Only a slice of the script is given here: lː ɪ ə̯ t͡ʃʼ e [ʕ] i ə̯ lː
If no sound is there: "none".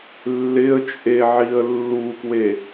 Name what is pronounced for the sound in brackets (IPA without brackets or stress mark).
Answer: ʕ